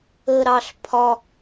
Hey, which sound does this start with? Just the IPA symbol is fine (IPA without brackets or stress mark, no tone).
ə